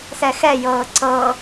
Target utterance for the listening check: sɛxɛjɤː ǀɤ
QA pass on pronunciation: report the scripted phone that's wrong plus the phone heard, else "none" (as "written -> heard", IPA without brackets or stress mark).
none